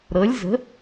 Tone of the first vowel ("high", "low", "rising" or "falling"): rising